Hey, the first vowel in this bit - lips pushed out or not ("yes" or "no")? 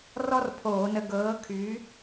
yes